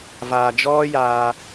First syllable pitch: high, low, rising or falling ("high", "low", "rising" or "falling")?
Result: low